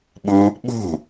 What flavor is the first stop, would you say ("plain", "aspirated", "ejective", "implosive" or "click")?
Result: implosive